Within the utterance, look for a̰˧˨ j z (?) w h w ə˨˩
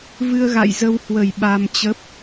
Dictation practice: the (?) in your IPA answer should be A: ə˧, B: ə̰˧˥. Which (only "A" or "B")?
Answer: A